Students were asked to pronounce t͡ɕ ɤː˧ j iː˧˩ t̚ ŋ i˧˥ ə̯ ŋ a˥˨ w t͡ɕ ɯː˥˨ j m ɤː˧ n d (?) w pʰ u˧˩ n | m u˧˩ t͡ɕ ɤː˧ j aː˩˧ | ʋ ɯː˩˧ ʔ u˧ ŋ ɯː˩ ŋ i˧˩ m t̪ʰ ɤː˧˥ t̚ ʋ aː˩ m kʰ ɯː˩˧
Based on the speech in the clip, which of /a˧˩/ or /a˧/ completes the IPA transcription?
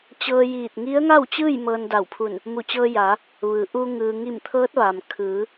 a˧˩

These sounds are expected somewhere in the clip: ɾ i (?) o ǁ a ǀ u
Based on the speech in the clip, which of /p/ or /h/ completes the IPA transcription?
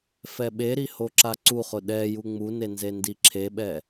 h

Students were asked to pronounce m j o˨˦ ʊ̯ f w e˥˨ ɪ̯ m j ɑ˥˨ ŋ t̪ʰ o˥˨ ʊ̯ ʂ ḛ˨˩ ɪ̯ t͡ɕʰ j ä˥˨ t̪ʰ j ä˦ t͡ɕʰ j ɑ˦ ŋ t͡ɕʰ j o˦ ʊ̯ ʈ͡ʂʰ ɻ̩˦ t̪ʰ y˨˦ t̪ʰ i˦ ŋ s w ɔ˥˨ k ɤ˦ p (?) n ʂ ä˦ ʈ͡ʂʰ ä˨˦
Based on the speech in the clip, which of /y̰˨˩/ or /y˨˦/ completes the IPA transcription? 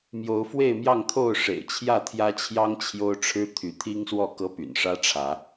y̰˨˩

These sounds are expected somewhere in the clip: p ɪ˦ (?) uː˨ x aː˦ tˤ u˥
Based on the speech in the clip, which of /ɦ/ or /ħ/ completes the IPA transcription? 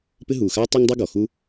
ɦ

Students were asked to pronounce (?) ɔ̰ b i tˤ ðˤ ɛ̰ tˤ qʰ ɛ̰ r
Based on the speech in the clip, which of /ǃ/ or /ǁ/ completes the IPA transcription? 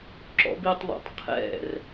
ǁ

